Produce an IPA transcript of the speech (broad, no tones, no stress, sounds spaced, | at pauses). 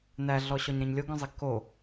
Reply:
n æ ɮ ɔ ɕ ɔ ɲ ɾ ẽ ɲ lʲ o ɡ œ̃ zˤ i ɡ k o